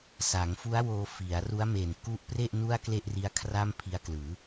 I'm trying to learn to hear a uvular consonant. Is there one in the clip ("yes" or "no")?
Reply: no